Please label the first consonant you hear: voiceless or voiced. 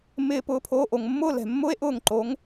voiced